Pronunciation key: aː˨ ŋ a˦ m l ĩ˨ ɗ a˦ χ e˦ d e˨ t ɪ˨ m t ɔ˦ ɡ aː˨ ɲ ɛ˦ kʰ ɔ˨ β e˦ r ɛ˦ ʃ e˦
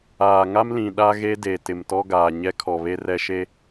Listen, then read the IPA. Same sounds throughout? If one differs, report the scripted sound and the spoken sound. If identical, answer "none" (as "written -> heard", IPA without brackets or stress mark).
χ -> ɣ